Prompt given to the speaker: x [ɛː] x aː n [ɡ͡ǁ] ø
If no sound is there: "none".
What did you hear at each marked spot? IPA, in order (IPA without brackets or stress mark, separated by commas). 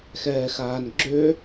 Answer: ɛː, ɡ͡ǁ